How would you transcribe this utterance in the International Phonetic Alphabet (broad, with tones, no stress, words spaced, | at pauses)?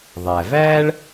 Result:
ðˤæ˩væː˥ɭ